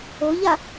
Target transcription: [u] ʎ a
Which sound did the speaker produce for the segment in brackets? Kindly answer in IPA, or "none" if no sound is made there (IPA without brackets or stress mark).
o